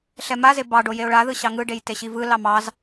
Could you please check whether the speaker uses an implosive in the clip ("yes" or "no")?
no